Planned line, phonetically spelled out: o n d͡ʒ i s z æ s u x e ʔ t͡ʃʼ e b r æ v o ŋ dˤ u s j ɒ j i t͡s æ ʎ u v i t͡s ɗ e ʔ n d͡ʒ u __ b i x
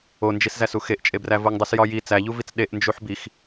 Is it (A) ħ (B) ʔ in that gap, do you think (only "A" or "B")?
A